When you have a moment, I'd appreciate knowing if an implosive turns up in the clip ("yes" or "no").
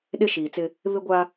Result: yes